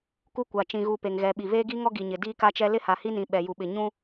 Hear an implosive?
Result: yes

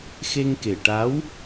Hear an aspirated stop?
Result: no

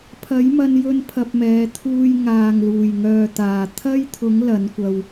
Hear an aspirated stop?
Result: yes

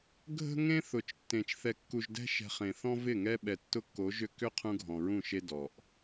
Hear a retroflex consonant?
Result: no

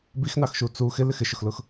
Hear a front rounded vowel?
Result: no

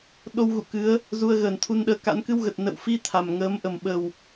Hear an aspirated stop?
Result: yes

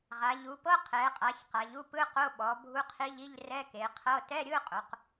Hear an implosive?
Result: yes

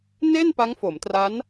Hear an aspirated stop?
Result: no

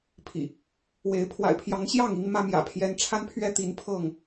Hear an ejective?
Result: no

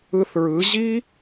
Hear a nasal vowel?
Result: no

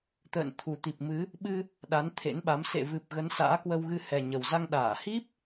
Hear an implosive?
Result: yes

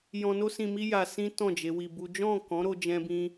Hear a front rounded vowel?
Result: no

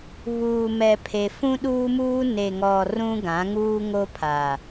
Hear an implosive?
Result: yes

